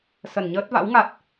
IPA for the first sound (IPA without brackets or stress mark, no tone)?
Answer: s